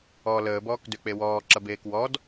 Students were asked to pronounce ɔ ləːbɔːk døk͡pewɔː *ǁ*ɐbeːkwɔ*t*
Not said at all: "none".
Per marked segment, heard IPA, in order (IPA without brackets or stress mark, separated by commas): ǁ, d